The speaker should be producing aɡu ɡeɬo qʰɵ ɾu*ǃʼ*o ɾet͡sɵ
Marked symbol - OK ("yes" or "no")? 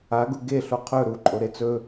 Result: yes